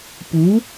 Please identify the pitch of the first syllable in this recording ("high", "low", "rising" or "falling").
rising